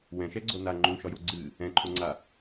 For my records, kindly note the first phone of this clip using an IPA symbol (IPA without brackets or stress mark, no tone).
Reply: w